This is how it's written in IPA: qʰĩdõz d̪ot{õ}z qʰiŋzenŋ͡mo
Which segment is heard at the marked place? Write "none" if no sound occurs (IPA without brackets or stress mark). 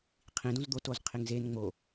o